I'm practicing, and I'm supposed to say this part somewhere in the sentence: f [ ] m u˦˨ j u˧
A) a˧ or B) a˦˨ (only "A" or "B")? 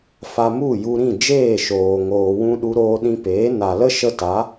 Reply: A